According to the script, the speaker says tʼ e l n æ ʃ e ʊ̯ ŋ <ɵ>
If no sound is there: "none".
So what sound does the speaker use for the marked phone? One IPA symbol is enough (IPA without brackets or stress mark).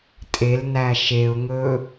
ɵː